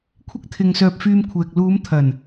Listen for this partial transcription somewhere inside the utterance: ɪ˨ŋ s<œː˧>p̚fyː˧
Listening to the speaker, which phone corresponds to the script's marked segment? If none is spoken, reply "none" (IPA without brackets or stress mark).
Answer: œː˧